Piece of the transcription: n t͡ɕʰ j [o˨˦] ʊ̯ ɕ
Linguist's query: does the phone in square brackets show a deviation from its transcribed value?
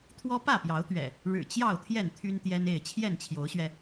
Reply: no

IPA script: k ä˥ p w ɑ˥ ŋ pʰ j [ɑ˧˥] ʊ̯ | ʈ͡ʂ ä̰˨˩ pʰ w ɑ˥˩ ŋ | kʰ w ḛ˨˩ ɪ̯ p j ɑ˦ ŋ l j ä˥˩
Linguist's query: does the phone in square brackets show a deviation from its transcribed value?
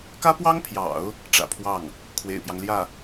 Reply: yes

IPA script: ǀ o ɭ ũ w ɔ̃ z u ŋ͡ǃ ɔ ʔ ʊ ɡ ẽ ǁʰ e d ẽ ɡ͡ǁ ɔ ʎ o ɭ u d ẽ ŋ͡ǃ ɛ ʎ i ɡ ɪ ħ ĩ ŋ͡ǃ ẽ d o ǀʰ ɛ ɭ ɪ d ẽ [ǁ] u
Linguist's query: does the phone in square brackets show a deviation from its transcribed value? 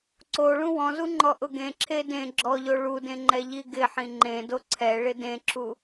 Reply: no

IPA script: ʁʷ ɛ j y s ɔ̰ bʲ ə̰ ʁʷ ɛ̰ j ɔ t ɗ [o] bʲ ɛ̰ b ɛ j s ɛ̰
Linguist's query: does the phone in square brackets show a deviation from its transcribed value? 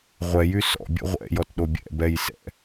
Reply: no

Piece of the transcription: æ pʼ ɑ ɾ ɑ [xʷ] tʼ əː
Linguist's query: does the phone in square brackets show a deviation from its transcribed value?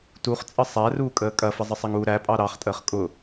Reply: yes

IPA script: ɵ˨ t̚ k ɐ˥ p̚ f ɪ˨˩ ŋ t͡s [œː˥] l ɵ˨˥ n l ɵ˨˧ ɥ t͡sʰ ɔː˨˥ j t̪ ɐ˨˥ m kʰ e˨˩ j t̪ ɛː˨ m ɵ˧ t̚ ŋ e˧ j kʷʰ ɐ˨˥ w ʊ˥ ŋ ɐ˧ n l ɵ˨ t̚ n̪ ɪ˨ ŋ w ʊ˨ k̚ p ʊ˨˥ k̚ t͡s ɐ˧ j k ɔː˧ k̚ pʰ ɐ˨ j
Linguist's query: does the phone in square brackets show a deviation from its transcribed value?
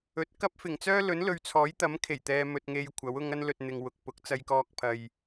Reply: no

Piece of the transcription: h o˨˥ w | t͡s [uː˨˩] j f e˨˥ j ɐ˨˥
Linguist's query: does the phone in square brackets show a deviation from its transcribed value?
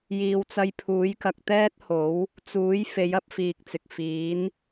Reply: yes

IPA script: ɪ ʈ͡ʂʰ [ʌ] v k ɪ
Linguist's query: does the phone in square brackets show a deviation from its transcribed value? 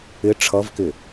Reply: no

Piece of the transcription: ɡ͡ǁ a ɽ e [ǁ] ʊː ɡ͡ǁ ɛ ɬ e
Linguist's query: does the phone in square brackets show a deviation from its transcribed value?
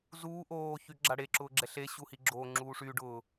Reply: no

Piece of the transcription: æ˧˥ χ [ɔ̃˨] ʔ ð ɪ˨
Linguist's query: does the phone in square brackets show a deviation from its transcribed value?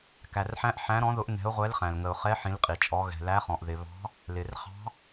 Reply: no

